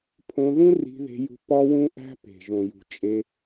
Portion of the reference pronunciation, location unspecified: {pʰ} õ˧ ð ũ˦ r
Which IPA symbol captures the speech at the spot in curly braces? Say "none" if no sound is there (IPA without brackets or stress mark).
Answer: pʰ